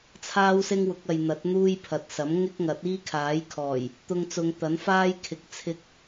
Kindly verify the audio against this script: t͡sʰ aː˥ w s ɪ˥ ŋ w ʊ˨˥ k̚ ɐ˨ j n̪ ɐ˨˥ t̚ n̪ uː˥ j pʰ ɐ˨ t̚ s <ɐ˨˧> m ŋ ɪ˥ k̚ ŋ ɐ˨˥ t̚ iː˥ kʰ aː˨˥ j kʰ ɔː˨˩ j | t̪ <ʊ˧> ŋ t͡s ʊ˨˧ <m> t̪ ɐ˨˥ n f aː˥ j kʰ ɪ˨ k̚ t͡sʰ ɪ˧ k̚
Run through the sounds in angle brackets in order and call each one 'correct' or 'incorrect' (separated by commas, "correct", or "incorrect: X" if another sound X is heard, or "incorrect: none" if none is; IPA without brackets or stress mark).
incorrect: ɐ˨˥, correct, incorrect: ŋ